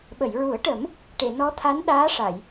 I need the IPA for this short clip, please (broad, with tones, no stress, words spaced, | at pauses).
ɓə˨˩˨jɹu˨˩˦ə̯ʈə˨˩˦m | ʈe˨˩˨nɔ˧˥ t̪ʰa˧˥n ɗaː˧˥ʂa˨˩˨j